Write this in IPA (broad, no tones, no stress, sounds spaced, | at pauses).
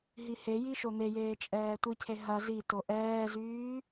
ɦ i h e j i ʃ o n̪ e j eː t͡ʃʼ ɛː tʷ i cʰ e ɦ ɐ z i t o ʔ ɛː z yː